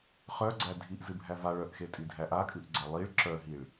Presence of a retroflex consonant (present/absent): present